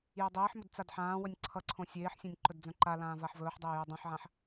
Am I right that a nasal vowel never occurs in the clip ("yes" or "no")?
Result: no